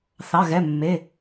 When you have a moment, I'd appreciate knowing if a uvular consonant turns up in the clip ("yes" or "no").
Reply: no